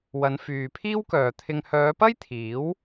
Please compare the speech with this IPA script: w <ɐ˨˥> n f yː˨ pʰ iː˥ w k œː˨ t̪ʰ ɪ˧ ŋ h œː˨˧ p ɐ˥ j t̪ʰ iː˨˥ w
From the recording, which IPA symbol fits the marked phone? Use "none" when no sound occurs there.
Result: ɐ˨˧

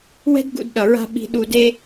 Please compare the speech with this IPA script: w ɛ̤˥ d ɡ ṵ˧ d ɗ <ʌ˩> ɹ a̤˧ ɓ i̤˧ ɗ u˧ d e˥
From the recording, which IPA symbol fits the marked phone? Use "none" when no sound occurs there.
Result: ʌ˩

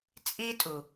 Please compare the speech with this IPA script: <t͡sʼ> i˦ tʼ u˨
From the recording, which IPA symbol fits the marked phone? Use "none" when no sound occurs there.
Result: t͡sʼ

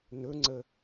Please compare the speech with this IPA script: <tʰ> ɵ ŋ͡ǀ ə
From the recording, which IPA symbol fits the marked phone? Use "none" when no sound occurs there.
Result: n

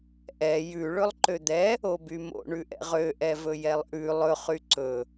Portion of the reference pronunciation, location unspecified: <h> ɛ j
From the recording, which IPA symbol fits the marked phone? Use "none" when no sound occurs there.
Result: ʔ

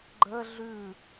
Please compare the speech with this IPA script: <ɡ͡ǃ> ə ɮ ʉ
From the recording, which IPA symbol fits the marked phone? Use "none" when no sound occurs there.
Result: ɡ͡ǃ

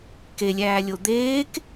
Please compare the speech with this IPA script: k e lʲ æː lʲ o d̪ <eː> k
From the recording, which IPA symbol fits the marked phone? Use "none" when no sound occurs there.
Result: eː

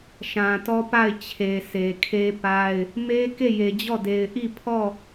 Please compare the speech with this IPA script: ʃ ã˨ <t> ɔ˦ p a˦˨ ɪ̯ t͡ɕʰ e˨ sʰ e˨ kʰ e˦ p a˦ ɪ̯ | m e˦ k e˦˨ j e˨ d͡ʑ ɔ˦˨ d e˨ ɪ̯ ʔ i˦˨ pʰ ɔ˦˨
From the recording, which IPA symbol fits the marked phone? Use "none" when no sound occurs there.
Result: t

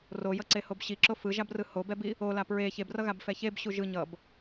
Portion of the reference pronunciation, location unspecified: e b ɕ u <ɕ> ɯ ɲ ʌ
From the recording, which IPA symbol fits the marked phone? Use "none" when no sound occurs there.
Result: ʒ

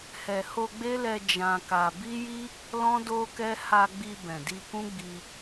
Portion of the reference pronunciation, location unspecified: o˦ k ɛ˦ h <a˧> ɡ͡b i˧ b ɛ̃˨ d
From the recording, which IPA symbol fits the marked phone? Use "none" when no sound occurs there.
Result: a˧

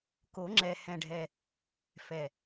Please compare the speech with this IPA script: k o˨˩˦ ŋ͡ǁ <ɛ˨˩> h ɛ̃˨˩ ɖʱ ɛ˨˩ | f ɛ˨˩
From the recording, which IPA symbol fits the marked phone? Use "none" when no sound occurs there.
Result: ɛ˨˩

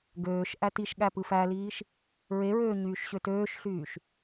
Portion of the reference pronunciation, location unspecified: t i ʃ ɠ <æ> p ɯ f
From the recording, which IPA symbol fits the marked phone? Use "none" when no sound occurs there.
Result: æ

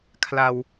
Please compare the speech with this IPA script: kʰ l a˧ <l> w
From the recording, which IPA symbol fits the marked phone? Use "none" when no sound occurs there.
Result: none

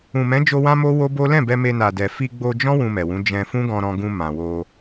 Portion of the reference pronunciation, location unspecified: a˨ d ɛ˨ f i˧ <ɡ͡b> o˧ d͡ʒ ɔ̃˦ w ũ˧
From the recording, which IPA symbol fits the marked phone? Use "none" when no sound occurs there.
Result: ɡ͡b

